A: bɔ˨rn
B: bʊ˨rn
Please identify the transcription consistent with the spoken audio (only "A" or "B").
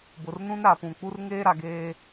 B